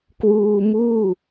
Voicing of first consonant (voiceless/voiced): voiceless